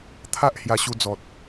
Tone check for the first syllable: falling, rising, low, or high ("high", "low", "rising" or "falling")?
high